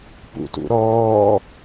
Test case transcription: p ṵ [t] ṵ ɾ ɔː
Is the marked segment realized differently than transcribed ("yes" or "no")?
no